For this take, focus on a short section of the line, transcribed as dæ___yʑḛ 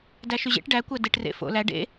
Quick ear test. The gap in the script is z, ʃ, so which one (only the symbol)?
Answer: ʃ